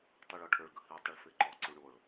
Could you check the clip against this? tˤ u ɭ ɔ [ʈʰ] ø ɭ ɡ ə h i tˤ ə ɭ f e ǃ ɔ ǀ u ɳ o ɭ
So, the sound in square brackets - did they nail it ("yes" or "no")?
yes